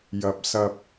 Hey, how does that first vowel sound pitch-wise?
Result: low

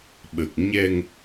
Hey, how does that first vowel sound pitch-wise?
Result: low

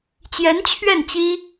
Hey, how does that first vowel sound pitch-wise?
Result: rising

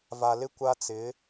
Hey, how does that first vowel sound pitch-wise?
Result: low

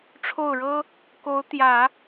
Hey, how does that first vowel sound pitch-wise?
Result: falling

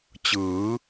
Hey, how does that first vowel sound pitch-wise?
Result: rising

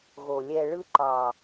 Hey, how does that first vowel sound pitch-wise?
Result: low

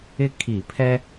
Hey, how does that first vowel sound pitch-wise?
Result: high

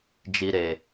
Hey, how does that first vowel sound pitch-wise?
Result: low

